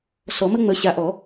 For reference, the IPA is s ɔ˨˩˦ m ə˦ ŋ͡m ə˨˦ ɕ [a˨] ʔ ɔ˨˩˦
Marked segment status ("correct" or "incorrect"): correct